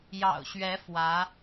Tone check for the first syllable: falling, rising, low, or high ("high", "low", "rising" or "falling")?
low